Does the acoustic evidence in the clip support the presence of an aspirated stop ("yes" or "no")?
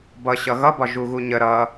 no